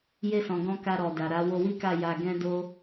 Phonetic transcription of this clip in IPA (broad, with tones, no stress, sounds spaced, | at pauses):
j e˧ s ɔ̃˨ ɡ ɔ̃˧ k a˧ ɾ ɔ˨ d a˨ ɾ a˨˦ w o˧ w i˦ k a˦˨ j a˧ ɡ ɛ̃˦ d o˦